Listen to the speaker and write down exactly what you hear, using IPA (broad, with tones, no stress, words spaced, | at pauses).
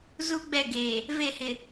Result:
zu˦ɡ͡bɛ˦˨ɡeː˨ | ve˦˨hɪ˨